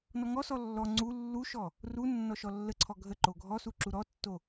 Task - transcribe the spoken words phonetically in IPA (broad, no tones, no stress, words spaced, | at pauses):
nɔŋɔsɔ lːɔ ŋ͡ǀu lːuʃɔ | ru nːɔʃɔlːəǀʰɔ ɡʱə ǃoɡʱɔsu ǁuɾɔtːo